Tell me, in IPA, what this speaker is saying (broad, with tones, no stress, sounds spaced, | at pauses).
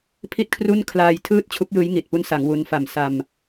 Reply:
pʰ i˥˩ t̚ kʰ r u˥˩ n kʰ l aː˧ j tʰ ɯː˥˩ t̚ t͡ɕʰ u˦˥ k̚ j ɯː˦˥ j ŋ i˨˩ t̚ p u˦˥ n s a˩˦ ŋ w u˦˥ n f a˨˩ m s a˧ m